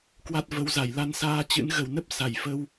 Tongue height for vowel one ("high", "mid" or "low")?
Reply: low